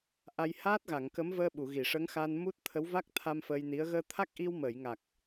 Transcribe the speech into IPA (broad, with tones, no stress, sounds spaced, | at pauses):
ʔ a˧ j h aː˦˥ t̚ ɣ a˨˩˨ ŋ k ə˧˥ m v əː˧ ɓ u˨˩˨ ɣ i˨˩˨ ʂ ə˧˥ ŋ x a˧ n m u˦˥ t̚ t̪ʰ ə˧˥ w v a˦˥ k̚ t̪ʰ a˧ m f əː˧ j n i˧˥ ə̯ ɣ əː˧ t̪ʰ a˦˥ k̚ ʔ i˧ w m əː˨˩˨ j ŋ a˨˩ k̚